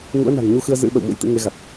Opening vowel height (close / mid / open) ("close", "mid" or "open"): close